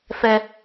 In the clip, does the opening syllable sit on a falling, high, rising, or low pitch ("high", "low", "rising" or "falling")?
high